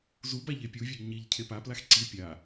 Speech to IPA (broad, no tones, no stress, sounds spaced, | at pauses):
z u b a ʎ e pʲ u vʲ e ɡ ɲ i ʎ cʰ e p a p l a x ǀ i pʲ a